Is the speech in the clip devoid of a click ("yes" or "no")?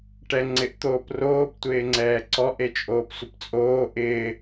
no